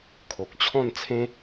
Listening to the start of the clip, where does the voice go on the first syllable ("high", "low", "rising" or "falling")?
low